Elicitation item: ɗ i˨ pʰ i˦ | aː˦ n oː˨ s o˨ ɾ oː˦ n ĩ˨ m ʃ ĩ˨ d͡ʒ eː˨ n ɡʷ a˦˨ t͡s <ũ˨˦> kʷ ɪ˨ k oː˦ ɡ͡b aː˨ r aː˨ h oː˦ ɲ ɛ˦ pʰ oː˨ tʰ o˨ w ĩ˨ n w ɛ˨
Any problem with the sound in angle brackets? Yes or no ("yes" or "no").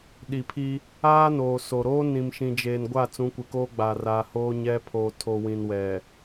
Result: no